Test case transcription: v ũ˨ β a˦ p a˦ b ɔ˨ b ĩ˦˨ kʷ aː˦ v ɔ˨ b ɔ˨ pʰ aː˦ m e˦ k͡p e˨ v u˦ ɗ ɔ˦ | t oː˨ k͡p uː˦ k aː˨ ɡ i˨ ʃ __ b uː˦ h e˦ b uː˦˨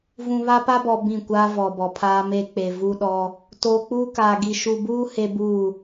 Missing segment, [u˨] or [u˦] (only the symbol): u˨